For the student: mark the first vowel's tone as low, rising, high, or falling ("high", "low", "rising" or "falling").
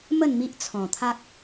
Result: falling